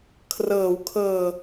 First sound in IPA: kʰ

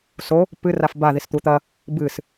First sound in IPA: s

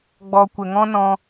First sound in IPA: ɡ͡b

